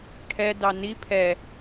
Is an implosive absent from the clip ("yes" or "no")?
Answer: yes